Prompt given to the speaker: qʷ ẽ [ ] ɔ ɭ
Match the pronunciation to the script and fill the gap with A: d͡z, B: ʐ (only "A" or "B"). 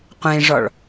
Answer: B